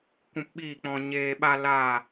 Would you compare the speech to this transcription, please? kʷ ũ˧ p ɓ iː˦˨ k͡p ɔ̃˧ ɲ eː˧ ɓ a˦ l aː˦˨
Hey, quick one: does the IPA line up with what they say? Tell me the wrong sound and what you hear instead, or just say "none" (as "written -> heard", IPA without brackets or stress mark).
none